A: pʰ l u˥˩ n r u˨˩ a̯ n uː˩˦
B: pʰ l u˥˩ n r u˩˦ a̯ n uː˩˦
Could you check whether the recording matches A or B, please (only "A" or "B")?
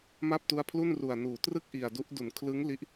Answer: A